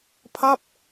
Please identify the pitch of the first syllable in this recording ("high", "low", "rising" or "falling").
falling